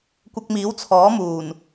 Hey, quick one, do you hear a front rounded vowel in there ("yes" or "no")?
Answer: no